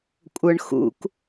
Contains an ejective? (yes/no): yes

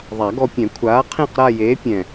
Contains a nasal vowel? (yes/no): yes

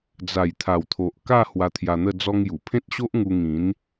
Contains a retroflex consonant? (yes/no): no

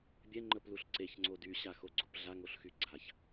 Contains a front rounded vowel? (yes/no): yes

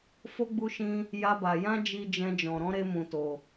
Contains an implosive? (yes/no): no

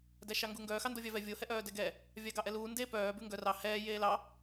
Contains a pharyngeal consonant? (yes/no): no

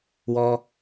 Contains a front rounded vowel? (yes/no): no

